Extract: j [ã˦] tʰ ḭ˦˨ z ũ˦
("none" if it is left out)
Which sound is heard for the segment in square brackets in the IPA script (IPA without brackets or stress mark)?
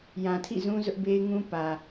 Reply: ã˨